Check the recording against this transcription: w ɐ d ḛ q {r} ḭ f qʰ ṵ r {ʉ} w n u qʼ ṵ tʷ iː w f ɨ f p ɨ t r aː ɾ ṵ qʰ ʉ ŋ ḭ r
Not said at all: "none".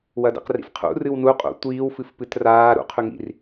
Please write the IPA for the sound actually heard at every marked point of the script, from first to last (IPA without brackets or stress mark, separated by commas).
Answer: r, ɨ